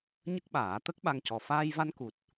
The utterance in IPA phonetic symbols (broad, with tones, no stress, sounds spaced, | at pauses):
ɲ ə˦˥ k̚ ɓ aː˨˩˦ t̪ ə˦˥ k̚ ɓ a˧ ŋ c ɔ˨˩ f aː˧ j v a˧ n k u˨˩ t̚